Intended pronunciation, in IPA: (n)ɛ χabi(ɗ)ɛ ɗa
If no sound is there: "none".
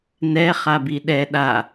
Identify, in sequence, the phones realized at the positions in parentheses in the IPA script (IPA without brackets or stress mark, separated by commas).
n, ɗ